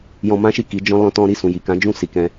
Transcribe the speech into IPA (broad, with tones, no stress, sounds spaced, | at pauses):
j ɔ̃˧ m ã˦ ʃ i˦˨ k i˨˦ d͡ʒ ɔ̃˦ l ɔ̃˦ t ɔ̃˦ ɾ i˦˨ s ũ˨ j i˨ k ã˨˦ d͡ʒ ũ˦˨ s i˨˦ k ɛ̃˧